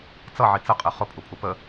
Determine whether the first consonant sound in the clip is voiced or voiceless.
voiceless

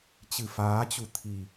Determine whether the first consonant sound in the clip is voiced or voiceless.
voiceless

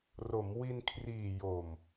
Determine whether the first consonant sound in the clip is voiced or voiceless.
voiced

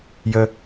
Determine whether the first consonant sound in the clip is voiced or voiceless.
voiced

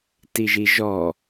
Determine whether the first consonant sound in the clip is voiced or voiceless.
voiceless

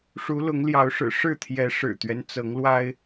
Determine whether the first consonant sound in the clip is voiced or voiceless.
voiceless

